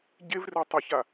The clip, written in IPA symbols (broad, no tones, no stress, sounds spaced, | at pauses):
ɟ e v r e tˤ ʌ ç a